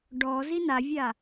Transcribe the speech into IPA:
ɖ ɔ z i n a vʲ a

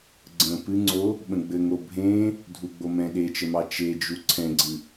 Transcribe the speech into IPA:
ɡ͡ǀ ə̃ p ɨ ŋ͡ǀ o | ɓ ə̃ ɡ͡b ɘ ŋ o bʱ ẽ | dʱ u ɡ͡b o m ɛ̃ ɗ e t͡ʃ ə m ɑ t͡ʃ e d͡ʒ u ǀʰ ɛ̃ ɡ͡ǀ ɨ

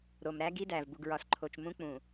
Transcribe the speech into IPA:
ɾ o˨ m ɾ æ˦ ɡ i˦ d æ˨ v b u˨ ɡ ɹ ɒ˨ s ǃʰ o˨ t͡ʃ m ũ˦ k͡p ũ˨

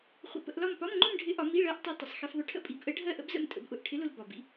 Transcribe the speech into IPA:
χʷ ə̰˧ p ə̰˧˥˧ ʔ l ɒ˥˧ m p ɒ˧˥˧ m ŋ͡ǃ ʊ˥˧ m ɖʱ ɪ˧˥ ʔ ɒ˩˧ m i˧˥˧ ɭ ɜ˧˥ ʔ tˤ i˧˥ tˤ ə˩˧ sˤ x i˧ f ðˤ ʊ˧˥ ʈʰ ə̰˥˧ pʼ i˩˧ b ʔ ə˧˥ ɖʱ ɜ˥˧ ʔ ə̰˧˥ b z ə̰˧ m tʼ ə̰˩˧ b ʔ ʊ˩ ʔ ʈʰ ɪ˧˥ l ʊ˧ l b ɒ˩ b ḭ˧

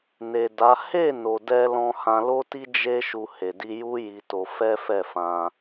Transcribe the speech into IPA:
n e˨ d a˨˦ h e˦˨ n o˨ d ɛ˧ l ɔ̃˧ h ã˧ l o˦ t i˦ d͡ʒ e˦ ʃ u˧ h e˨ d i˧ j u˦ j i˧ t o˧ f ɛ˦ f ɛ˦˨ f ã˧

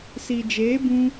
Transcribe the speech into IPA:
s i˨ d͡ʒ eː˨˦ b ũ˧

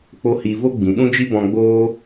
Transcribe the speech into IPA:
k͡p o˦ h i˧ v o˦ ɡ͡b ĩ˨ ɗ ũ˦ d͡ʒ i˦ b ɔ̃˧ ɡ͡b oː˦

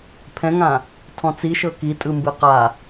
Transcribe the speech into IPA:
pʰ ɛ̃ ŋ ã | tʰ ɔ̃ t͡s i ʃ ɤ k i tʼ ɯ m b ɯ q a

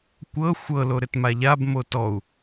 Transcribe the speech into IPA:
kʷ ɤ xʷ ɤ l o ɾ ɘ t m a ʎ a b m o t ɔ u̯

